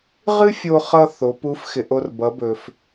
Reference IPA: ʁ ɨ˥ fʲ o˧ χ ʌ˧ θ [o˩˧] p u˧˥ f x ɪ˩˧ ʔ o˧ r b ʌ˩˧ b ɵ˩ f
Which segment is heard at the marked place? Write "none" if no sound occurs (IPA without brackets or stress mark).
o˩˧